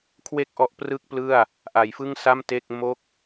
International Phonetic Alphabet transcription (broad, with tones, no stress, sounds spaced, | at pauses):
kʰ w e˥˩ k̚ ʔ ɔ˦˥ ʔ p r ɯ˥˩ k̚ p l ɯ˥˩ a̯ | ʔ a˩˦ j f ɯ˥˩ ŋ s a˥˩ m t e˥˩ k̚ m o˥˩ k̚